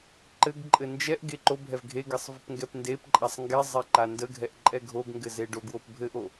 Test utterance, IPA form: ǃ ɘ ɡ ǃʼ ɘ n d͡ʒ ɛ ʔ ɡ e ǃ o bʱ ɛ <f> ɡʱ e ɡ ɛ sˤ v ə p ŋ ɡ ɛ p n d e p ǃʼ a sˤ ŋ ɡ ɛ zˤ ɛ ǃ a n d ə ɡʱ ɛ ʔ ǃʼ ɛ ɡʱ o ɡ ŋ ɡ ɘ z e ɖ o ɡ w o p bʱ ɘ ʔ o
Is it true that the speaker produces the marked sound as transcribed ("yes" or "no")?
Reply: no